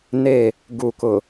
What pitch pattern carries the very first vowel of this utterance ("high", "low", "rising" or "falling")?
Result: falling